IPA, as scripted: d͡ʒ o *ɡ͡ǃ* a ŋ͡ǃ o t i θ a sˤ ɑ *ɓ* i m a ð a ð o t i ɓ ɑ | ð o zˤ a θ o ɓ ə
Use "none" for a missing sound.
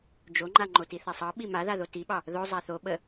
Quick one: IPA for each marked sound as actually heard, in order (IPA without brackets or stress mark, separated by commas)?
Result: ŋ͡ǃ, ɓ